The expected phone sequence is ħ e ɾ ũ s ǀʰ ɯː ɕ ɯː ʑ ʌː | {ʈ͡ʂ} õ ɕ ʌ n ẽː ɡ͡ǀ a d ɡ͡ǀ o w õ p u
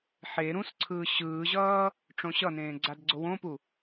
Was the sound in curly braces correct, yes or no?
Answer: yes